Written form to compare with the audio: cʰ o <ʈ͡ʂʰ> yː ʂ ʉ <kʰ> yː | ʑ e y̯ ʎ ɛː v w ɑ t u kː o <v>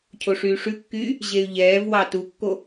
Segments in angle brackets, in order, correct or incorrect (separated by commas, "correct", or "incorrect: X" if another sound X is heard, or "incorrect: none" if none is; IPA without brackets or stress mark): incorrect: ʂ, incorrect: kː, incorrect: none